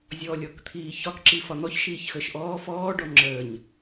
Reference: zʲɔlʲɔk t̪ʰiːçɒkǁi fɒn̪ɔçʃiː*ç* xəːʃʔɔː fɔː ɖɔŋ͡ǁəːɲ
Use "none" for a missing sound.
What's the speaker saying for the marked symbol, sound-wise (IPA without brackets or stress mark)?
ç